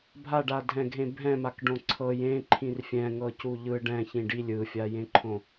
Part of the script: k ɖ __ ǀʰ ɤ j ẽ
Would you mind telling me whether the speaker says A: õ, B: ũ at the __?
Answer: A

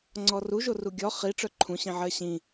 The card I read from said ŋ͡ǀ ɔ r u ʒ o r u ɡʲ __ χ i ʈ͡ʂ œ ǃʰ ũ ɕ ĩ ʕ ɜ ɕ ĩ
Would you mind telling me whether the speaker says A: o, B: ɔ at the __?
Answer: B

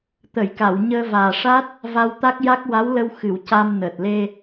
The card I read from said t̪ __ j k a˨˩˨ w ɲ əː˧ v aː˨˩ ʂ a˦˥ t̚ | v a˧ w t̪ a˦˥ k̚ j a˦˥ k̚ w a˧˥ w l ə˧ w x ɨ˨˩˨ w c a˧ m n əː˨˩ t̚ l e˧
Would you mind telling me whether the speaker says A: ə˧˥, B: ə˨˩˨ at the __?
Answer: B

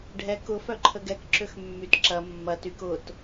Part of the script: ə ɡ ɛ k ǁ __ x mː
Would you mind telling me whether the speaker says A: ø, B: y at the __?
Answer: A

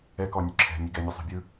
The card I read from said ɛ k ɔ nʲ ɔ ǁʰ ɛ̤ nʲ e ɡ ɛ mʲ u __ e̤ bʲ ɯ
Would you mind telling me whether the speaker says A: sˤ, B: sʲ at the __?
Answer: A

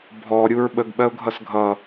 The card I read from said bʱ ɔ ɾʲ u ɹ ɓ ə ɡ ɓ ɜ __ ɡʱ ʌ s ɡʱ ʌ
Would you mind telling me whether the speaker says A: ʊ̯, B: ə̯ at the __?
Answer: A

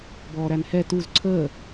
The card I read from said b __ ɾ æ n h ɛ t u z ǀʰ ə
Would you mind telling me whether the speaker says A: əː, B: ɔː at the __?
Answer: B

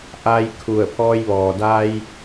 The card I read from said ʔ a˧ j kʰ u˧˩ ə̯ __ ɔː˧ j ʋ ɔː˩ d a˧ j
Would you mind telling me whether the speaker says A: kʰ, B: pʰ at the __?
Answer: B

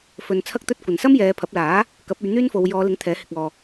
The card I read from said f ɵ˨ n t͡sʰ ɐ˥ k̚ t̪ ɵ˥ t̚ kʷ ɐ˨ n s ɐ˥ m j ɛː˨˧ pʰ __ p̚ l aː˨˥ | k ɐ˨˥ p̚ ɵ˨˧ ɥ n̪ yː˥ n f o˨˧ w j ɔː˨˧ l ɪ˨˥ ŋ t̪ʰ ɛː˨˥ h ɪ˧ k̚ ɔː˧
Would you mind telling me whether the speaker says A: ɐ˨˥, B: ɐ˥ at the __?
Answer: A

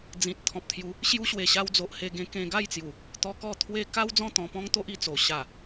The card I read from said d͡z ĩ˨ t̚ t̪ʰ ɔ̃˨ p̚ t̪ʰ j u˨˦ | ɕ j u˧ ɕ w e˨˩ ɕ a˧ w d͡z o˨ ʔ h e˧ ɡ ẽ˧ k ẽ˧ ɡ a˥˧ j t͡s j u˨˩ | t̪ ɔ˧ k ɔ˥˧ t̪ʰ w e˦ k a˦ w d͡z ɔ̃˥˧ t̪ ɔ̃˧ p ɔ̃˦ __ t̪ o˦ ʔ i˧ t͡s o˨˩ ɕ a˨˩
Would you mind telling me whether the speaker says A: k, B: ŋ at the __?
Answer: B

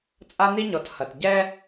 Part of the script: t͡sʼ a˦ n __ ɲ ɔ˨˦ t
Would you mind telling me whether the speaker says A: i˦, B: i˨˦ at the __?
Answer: A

